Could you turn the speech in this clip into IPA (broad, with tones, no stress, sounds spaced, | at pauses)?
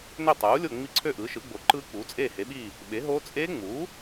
n ø˥˨ tˤ uː˩˥ lʲ o˥˨ ŋ͡m i˦˥ ǀʰ ø˥˨ ʔ ɯː˩˥ ʃ ɯ˩˥ ɡ͡b o˩˥ ǃ ɯː˦˥ k͡p uː˩˥ t͡sʼ eː˥˨ h e˩˥ ɓ iː˥˨ | ɓ e˩˥ ɦ oː˦˥ t͡sʼ eː˦˥ ŋ͡m uː˩˥